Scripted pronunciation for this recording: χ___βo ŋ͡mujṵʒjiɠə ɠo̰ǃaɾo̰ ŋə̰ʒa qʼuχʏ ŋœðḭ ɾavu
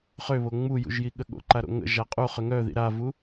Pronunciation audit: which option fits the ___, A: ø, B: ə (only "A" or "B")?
A